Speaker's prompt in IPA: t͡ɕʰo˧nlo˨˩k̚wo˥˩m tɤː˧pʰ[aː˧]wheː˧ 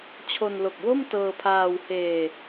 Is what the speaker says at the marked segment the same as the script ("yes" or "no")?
yes